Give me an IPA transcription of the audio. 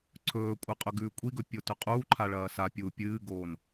ǀʰ ɵː kʷʼ ɨ qʼ ɵ ɡ ʉː kʷʼ i ɡ ɵ pʲ o t ɵ qʼ uː ǃʰ a ɭ ɐː s a pʲ uː pʲ ɨː ɡ oː n

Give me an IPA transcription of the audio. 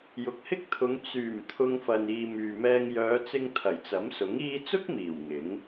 j ʊ˨ k̚ h ɪ˥ k̚ t̪ʰ ʊ˨˧ ŋ t͡s yː˨˩ m t̪ʰ ʊ˧ ŋ f ɐ˨ n iː˨ m yː˨ m ɛː˧ ŋ j œː˨˧ t͡s ɪ˧ ŋ t̪ʰ ɐ˨˩ j t͡s ɐ˨˥ m s ʊ˨˥ ŋ iː˧ t͡s ʊ˥ k̚ m iː˨˩ w ŋ ɪ˨˥ ŋ

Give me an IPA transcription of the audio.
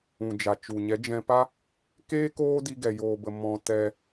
ũ˨ d͡ʒ a˨ t͡ʃ u˨ ɲ ɛ˨˦ d͡ʒ ɛ̃˧ p a˦ | k eː˦ k oː˦ d i˧ ɡ ɛ˧ j oː˧ b ə˧ m ɔ̃˧ t ɛ˧

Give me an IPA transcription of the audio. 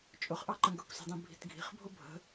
t͡ʃʼ ʊ χ ʔ ɑ ǃ ə̃ ɡ ə kʷ s i̤ dˤ ĩ bʱ i̤ t ɡʱ i̤ χ bʱ ʊ bʱ ə̤

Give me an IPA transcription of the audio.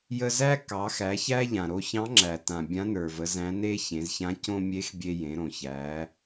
j ə˧ z æ˥ k ɑ˩˧ x æ˩˧ ç æː˥ ʎ ã˩ ɾ o˧ ç ɑ̃˧˥ ŋ͡ǁ æ˩ t ã˩ bʲ ã˧˥ n ə˞˩ v ə˩˧ z æ̃˧˥ n e˥ ç ẽ˩˧ z ç ã˧˥ c õ˥ mʲ e˧˥ x bʲ e˧ j ẽ˩˧ ɾ õ˩ ç æː˩˧

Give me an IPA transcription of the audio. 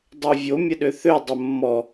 dˤ ø vʲ o mʲ ə ɗ ø θ ø dˤ ə mː ɔ

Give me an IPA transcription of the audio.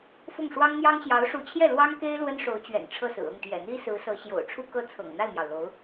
f ʊ˥˩ ŋ ʂ w ɑ˥ ŋ n̪ j ɑ˥ ŋ ɕ j ɑ˧˥ ʊ̯ ʂ u˧˥ t͡ɕʰ j ɛ˥˩ l w ɑ˥ ŋ k e˥ ɪ̯ l w ə˥ n ʂ o˧˥ ʊ̯ t͡ɕ ɥ ɛ̰˨˩ n ʈ͡ʂʰ ɤ˥˩ s ɹ̩˨˩ ɤ˥˩ ŋ t̪ j ɛ̰˨˩ n̪ i˥ s ɹ̩˧˥ s ɤ˧˥ ɕ j o̰˨˩ ʊ̯ ʈ͡ʂʰ u˥ k ɤ˥˩ t͡sʰ ɤ̰˨˩ ŋ n̪ a˥˩ ɪ̯ m j ɑ˩ ʊ̯ l o˧˥ ʊ̯

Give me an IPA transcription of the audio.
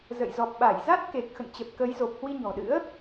z ə̰˧˨ j z ɔ˨˩ p̚ ɓ a˧˩ j z a˦˥ t̚ k e˨˩ k̚ x ə̰˧˨ n t͡ɕ ə˨˩ p̚ k ə˨˦ j z o˨˩ p̚ h w i˧ ɲ ɔ̤˨˩ ɗ ɨ̰˧˥ ə̯

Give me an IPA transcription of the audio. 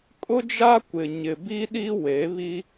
kʼ ʊ˦ d͡ʒ a˦ kʷ ɪ˨ ɲ ɪ˨ b i˦ ɗ i˦ w e˨˦ β i˦

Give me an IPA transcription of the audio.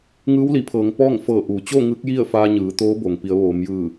ŋ ɯː˧˥ w l i˩˧ pʰ ɤː˩˧ ŋ p ɔː˥˨ ŋ f ɤː˧˩ ʔ uː˩ t͡ɕ o˥˨ ŋ ɯː˧˥ k̚ j i˥˨ ə̯ f aː˧ ɲ ɯː˩˧ t̪ oː˧˥ b o˩ ŋ p i˩˧ ə̯ ʋ oː˩˧ m j ɯː˧˩

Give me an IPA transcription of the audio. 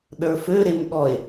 ɗ ə˞ f ø ɾ e m ɠ ɔ e̯

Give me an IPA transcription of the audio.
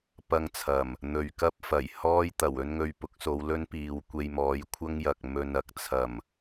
p ɐ˧ ŋ t͡sʰ ɐ˨˩ m | n̪ ɵ˨ ɥ k ɐ˥ p̚ f ɐ˨˩ j h ɔː˥ j t̪ ɐ˨˩ w ɵ˥ n ŋ ɵ˧ ɥ p ʊ˨˥ k̚ s o˨˧ w l ɵ˥ n p iː˨ w kʷ e˧ j m ɔː˨˧ j kʷʰ ɐ˥ ŋ j ɐ˨ k̚ m ɵ˨ n ɐ˧ k̚ t͡sʰ ɐ˨˩ m

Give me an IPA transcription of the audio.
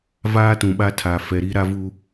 v aː˦ t ũ˨ ɓ a˦ tʰ aː˨ f ɛ˨ ɾ i˦ ɾ a˦ v u˦

